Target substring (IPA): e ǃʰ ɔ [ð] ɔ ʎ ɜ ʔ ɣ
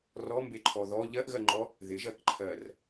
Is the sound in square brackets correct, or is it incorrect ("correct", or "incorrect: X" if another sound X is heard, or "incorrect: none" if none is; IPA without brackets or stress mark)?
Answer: correct